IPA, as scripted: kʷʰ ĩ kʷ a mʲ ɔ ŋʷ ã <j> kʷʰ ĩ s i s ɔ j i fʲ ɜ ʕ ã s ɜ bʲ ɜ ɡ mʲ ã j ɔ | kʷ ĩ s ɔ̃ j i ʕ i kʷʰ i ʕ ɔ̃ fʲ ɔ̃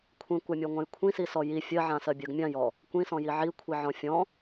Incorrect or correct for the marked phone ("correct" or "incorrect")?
correct